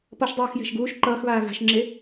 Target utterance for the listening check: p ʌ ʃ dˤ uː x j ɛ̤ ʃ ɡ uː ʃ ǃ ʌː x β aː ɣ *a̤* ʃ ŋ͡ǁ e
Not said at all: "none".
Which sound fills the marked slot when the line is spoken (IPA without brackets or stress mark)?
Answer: a̤